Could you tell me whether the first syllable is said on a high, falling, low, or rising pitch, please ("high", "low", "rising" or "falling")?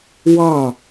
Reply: falling